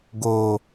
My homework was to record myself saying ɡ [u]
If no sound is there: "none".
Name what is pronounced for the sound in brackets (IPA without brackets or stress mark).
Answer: o